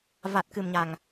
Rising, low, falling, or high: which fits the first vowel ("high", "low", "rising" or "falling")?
low